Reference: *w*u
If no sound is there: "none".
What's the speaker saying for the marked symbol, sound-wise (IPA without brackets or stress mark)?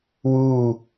w